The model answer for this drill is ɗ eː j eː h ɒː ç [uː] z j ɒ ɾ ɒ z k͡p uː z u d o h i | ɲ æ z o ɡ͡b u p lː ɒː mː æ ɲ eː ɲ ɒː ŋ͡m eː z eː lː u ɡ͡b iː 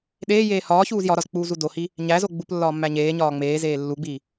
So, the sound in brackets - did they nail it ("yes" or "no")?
yes